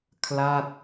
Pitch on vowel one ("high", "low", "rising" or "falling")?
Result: falling